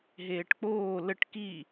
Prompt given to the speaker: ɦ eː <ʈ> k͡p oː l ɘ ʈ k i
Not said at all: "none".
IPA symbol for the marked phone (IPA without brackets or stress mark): ʈ